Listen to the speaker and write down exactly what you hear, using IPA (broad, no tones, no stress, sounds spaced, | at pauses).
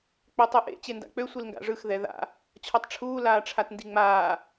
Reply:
k͡p ø tˤ ɯ ʔ ḛ t͡ɕ e n d a̰ k͡p ø sʷ i l ŋ ɡ a̰ ʐ ɯ x ð ɛ ð a̰ | t͡ɕʰ ɔ tˤ ʈ͡ʂʰ uː l aː ʈ͡ʂʰ a t n d i ŋ͡m aː